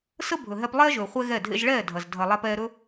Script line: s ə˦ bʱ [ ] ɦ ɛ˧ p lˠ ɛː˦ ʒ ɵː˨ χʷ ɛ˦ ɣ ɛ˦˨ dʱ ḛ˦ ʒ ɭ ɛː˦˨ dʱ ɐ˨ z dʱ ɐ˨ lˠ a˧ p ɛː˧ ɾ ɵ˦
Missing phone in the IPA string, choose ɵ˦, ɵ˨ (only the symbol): ɵ˨